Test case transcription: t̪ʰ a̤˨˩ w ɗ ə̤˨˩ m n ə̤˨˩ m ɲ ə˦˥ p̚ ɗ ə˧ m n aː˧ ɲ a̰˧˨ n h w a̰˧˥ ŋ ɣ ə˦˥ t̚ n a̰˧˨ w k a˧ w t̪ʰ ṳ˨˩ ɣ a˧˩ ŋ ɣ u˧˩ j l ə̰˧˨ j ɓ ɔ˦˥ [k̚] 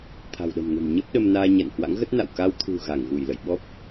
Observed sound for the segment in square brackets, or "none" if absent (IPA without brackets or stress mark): p̚